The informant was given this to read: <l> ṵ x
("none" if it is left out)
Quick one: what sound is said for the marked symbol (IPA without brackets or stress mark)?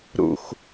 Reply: ɾ